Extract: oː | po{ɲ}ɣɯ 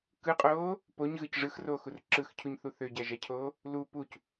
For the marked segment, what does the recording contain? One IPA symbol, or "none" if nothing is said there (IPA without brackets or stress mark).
ɲ